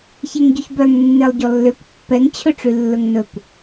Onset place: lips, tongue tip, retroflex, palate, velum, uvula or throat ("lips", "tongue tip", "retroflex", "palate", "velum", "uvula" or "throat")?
palate